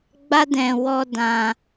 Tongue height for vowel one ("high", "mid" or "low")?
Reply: low